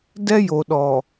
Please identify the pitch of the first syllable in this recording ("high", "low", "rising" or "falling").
high